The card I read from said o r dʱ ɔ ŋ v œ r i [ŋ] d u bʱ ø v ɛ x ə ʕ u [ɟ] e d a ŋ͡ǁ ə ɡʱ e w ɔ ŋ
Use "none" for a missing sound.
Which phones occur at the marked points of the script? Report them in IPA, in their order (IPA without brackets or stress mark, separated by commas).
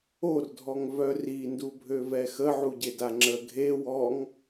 n, ɟ